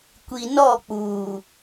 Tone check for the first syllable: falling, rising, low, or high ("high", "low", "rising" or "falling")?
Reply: low